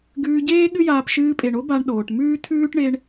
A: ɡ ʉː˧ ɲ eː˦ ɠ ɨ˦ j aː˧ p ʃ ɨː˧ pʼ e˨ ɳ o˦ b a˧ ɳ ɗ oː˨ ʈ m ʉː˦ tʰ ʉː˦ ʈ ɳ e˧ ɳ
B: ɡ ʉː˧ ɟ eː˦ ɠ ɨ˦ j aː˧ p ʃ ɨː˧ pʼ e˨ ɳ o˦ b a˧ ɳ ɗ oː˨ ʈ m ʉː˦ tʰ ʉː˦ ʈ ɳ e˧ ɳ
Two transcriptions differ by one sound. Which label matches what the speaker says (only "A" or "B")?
B